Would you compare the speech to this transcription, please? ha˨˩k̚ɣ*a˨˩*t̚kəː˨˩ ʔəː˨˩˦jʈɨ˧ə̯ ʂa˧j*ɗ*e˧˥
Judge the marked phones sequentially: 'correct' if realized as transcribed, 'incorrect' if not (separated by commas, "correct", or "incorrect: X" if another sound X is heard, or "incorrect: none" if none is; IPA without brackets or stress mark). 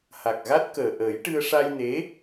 incorrect: a˦˥, incorrect: n